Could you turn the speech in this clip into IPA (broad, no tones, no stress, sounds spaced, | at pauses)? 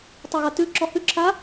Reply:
tˤ u ɣ a t ʉ ǁ ɔ h ʉ ǁʰ a